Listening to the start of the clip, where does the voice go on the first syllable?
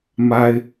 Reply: high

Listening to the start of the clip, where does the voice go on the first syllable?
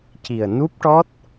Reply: low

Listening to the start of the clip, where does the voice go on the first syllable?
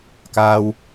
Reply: low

